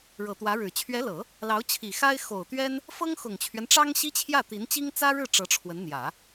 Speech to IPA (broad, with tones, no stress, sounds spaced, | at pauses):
ɻ ɤ˨˩ t̪ w ä˧˥ ɻ ɻ̩˨˩ t͡ɕʰ ɥ ɛ˧˥ l ɤ˨˩˦ | l ɑ˧˥ ʊ̯ t͡ɕʰ i˨˩ x a˥ ɪ̯ x o˨˩ ʊ̯ t̪ ɥ ɛ˥ n | f ɤ˥ ŋ x ʊ˨˩ ŋ t͡ɕʰ ɥ ɛ˦ n ʈ͡ʂ ɑ˥ ŋ ɕ i˥ t͡ɕʰ j ä˥˩ t̪ i˧˥ n t͡ɕ i˥ ŋ t͡s ä˥ ɻ ɻ̩˥˩ ʈ͡ʂ ɤ˧˥ ʈ͡ʂʰ w ə˧˥ n n̪ j ä˨˩˦